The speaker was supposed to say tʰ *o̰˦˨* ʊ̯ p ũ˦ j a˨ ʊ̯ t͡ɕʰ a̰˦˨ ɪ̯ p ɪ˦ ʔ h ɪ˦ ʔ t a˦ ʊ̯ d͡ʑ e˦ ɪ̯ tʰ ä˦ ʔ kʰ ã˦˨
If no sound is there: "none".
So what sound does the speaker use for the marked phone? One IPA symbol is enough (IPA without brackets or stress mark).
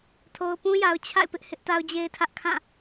o˨